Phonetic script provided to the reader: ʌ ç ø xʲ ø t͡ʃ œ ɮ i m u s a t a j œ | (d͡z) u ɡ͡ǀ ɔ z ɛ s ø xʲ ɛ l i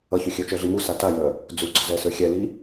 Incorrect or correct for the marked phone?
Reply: correct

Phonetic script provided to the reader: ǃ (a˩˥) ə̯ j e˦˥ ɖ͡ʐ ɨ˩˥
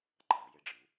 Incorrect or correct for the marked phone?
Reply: correct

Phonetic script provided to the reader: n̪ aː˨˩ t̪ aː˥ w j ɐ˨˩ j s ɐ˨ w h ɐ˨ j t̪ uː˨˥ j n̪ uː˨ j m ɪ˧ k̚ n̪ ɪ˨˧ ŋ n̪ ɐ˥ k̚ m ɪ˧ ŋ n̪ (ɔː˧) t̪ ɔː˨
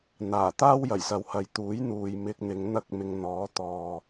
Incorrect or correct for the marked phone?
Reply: incorrect: ɔː˨˥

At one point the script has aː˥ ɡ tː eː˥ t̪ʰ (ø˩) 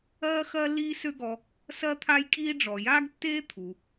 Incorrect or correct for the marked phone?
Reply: incorrect: u˩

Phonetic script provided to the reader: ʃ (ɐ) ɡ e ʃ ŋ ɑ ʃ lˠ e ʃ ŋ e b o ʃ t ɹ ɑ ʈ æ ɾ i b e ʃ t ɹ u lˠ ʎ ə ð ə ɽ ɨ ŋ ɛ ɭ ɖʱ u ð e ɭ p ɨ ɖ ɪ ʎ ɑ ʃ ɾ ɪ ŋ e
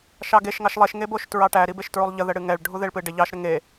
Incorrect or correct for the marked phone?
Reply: incorrect: ɑ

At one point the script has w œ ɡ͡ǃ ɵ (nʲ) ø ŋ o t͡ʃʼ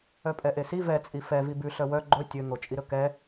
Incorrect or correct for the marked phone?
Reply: incorrect: tʲ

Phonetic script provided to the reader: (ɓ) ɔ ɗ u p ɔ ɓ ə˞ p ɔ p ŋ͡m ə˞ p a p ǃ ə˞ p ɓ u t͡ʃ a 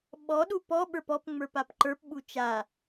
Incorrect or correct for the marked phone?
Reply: correct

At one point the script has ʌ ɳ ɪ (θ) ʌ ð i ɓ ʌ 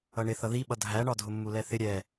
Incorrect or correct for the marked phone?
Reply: correct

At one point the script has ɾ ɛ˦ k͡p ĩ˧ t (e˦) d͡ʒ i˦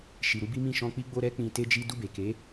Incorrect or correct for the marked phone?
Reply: correct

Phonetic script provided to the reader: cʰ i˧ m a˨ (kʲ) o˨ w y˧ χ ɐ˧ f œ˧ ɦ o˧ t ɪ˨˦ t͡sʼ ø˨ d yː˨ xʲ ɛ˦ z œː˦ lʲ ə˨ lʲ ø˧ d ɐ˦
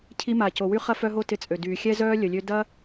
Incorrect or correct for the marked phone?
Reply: incorrect: c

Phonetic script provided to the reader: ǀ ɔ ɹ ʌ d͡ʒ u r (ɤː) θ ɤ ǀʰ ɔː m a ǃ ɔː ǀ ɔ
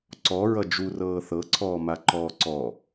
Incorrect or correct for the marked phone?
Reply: correct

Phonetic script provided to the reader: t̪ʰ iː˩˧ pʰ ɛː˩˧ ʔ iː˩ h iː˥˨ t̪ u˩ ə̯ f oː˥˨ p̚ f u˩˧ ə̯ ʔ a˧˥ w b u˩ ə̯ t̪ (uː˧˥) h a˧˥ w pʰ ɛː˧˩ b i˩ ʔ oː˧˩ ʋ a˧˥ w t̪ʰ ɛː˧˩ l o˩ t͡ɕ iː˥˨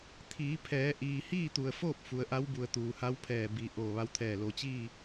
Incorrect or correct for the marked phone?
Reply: incorrect: uː˩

